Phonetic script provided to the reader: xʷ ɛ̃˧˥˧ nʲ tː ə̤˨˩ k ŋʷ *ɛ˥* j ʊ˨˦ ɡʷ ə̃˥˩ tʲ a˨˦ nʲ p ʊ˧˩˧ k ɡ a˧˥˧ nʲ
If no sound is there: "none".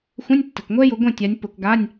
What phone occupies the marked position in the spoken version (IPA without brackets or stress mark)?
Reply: ɛ˥